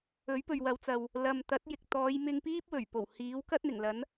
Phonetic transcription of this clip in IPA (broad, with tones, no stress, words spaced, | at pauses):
ɵ˨˥ɥpɵ˨ɥwɐ˨˧wt͡sɐ˨w | lɐ˨mt̪ɐ˨˥t̚jɪ˨k̚ t̪ɔː˨˧jmɪ˧ŋpiː˥p̚ wɵ˨˩ɥpo˨˩whiː˨˥w kɐ˥t̚n̪ɪ˨˩ŋlɐ˨˥n